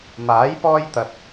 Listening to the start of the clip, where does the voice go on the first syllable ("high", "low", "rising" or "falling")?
rising